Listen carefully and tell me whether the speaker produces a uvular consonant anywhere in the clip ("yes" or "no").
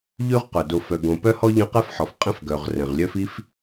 yes